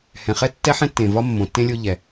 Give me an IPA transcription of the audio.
h ɛ̃˩ χ ɛ˥ tː ɛ˥ ħ ɛ̃˥ tː ẽ˩ v ɒ˥ mː õ˩ tː ẽ˥ lʲ o˥ ʎ ɛ˩

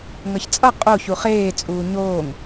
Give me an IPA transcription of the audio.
ŋ ʌ ç t͡sʼ ʌ qʼ o ç u χ eː t͡sʼ uː ɲ oː ŋ

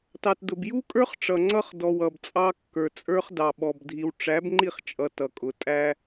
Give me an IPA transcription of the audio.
t ɑ˨ t d ʊ˨ b j u˦ kʼ ə˞˦ χ ʈ͡ʂ ʌ˨ ŋ͡ǀ ʌ˦ χ d ɔ˨ w ʌ˨ b t͡sʼ ɑ˦ kː ə˞˨ t͡sʼ ə˞˦ χ d ɑ˨ ɓ ɔ˨ b dʱ i˨ w ʈ͡ʂ æ˨˦ b ŋ͡ǃ i˦˨ χ t͡ʃʼ ʌ˨ t ʌ˨ kʼ ʊ˨ tʼ æ˦

